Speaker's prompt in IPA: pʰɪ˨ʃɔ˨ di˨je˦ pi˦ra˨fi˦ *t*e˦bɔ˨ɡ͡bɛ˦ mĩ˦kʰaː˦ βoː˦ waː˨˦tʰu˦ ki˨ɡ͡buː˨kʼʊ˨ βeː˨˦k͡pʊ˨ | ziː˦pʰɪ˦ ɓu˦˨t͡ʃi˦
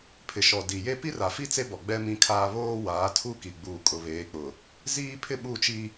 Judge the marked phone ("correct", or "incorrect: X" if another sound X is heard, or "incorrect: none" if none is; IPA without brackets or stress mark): incorrect: t͡s